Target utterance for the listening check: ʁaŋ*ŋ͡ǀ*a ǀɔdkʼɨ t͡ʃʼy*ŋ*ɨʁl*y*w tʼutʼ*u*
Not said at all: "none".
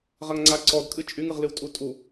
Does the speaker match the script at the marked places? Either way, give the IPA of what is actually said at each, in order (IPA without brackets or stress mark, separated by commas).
ŋ͡ǀ, ŋ, ɨ, u